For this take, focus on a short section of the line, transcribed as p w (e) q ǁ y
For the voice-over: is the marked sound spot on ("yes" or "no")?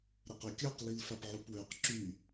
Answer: no